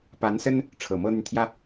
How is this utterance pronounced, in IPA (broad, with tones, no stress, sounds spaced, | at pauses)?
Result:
p a˧˥ n s ə˥ n | ʈ͡ʂʰ ɤ˨˩ m ɤ˥ n̪ y˨ n t̪ʰ j ä˥